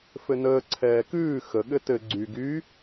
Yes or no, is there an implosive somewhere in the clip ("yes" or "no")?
yes